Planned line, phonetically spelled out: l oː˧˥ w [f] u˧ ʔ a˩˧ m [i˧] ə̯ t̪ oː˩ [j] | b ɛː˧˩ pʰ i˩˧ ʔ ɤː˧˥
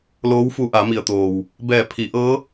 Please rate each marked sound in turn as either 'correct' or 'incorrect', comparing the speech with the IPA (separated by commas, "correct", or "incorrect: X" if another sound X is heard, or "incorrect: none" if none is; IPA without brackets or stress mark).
correct, incorrect: i˩, incorrect: w